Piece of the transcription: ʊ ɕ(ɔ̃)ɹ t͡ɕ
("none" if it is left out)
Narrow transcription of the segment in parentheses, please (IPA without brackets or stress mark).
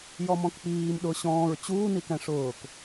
ɔ̃ː